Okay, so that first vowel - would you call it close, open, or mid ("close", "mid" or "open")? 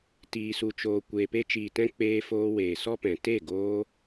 close